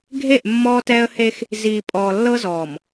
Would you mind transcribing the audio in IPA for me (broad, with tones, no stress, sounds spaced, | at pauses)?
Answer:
ɡʱ e˦˨ ʔ mː ɔː˦ t ɛː˦ ə̯ h e˦ x | z iː˨ pʼ ɔː˨ lː ɤ˦ z ɔː˨ m